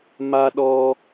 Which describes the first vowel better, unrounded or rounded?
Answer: unrounded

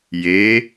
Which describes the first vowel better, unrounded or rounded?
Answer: unrounded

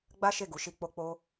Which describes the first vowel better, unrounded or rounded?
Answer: unrounded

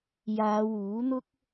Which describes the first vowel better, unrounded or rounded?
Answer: unrounded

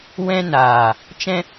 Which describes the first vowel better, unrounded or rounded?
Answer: unrounded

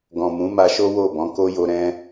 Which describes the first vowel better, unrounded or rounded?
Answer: rounded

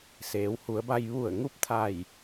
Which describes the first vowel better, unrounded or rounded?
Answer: unrounded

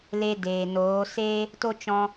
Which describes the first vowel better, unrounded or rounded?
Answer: unrounded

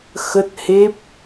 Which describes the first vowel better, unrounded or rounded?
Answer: unrounded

